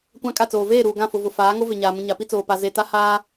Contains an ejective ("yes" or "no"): yes